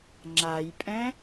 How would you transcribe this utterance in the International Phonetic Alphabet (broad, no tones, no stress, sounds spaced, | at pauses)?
ŋ͡ǁ a j pʼ ɛ̃